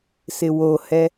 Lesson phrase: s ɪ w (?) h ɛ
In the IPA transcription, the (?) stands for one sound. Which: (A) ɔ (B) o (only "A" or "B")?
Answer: B